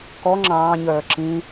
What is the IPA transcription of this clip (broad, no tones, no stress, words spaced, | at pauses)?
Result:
kɔ ŋ͡ǁɑ̃ːɲœː ǁĩ